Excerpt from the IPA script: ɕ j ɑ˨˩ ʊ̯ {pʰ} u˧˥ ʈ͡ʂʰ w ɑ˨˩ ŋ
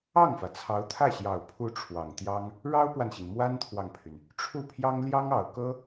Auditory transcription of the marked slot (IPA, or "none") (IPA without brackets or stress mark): pʰ